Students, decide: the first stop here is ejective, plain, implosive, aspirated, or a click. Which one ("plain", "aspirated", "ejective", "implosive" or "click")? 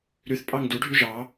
ejective